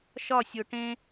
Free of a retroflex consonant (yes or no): no